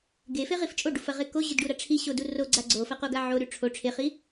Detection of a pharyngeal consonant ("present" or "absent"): present